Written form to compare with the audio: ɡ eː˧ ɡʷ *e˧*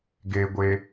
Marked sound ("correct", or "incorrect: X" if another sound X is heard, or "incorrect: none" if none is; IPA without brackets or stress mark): correct